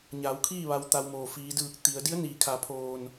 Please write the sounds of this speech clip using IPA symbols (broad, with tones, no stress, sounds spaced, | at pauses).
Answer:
ɲ aː˩˧ w kʰ iː˥˨ ʋ a˧ w t̪ a˧ w m oː˩ f iː˩˧ d ɯː˧˩ k̚ t̪ i˩˧ ə̯ d i˧˥ ə̯ n iː˩˧ kʰ a˩˧ pʰ oː˧˩ n